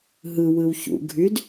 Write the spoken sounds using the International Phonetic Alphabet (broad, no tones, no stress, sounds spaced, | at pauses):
ɦ ɯ w ɯ w ç ṵ ɡʱ y d